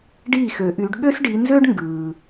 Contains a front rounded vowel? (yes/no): yes